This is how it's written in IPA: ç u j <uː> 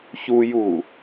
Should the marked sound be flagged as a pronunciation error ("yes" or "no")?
no